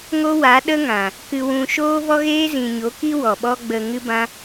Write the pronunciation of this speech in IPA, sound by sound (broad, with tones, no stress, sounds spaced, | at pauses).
ŋ o˦ w a˨˦ ɗ ə˦ ŋ ã˨ | k ɨ˧ w ũ˧ ʃ oː˦ v ɔ˦ ɣ eː˦ z ĩ˨ ɲ o˨˦ k i˦ w ɔ˨ ɓ ɔ˦ ɡ͡b ə˧ ŋ ɨ˦ b ã˦